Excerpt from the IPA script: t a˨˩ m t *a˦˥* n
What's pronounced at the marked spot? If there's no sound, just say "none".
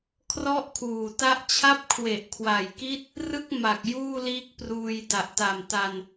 a˧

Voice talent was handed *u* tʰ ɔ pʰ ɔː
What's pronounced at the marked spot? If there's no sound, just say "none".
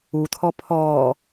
u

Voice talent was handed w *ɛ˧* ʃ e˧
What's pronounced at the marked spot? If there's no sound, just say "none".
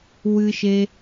ɨ˧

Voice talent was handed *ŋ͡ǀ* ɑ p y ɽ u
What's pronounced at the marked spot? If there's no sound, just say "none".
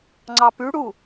ŋ͡ǀ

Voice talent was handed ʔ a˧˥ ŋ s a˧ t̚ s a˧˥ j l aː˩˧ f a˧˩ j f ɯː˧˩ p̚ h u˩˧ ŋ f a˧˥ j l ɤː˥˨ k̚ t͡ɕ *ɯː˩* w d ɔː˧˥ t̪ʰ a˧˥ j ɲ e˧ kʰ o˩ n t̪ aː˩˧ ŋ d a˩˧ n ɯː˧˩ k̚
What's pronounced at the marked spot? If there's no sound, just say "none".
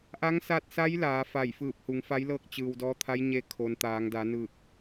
ɯː˩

